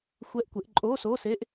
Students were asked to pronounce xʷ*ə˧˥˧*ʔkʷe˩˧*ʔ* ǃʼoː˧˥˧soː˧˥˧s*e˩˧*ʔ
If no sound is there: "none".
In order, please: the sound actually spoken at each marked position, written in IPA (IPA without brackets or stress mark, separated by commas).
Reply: ɛ˧˥˧, ʔ, e˧˥˧